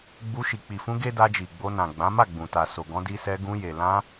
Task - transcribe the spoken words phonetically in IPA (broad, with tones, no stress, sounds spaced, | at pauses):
ɡ͡b u˧ ʃ i˨ k͡p i˨ f ũ˧ ɡ e˦ d a˧ d͡ʒ i˨ ɡ͡b o˧ n ã˨ ɡ͡b ã˨˦ m a˦˨ ɡ͡b ũ˨ t a˨ s o˨ ɡ ɔ̃˧ d i˧ s ɛ˧ ɡ ũ˧ j e˨ l ã˧